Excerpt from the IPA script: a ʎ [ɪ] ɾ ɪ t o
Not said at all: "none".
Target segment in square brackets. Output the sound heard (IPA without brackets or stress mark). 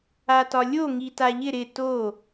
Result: ɪ